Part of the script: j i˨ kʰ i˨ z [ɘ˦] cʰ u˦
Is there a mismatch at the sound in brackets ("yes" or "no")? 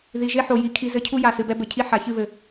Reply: no